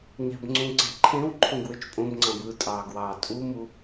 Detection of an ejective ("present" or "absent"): present